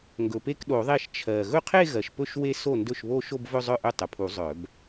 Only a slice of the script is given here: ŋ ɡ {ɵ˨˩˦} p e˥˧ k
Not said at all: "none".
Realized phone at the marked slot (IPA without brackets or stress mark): ɵ˨˩